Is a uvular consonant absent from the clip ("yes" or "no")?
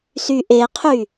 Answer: no